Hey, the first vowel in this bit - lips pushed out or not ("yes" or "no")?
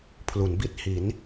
yes